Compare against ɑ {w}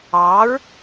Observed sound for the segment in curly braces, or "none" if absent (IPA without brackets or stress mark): ɹ